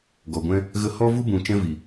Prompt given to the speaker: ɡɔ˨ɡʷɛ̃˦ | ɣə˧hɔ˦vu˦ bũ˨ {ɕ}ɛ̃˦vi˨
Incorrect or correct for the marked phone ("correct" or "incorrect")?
incorrect